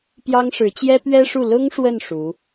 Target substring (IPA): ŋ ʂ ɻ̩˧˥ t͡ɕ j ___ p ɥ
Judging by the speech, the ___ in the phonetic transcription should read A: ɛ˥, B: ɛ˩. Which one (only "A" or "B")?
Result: A